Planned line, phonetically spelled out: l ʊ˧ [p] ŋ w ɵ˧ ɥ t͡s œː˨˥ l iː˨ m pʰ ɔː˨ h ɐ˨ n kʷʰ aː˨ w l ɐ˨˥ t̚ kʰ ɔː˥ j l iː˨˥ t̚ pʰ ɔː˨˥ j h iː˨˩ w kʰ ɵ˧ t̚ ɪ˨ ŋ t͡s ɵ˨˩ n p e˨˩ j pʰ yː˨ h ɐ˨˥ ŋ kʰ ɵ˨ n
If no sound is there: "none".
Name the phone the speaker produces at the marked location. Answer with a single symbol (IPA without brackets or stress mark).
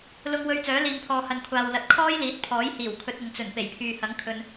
none